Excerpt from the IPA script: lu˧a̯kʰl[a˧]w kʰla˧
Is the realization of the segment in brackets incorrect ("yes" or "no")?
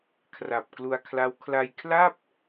yes